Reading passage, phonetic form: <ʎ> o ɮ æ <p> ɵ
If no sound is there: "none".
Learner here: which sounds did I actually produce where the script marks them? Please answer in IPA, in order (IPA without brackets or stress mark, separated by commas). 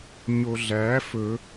ɲ, f